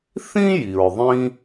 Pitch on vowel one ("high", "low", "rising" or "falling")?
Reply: high